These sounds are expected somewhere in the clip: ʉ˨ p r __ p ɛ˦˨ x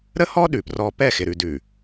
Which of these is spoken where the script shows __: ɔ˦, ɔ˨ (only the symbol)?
ɔ˦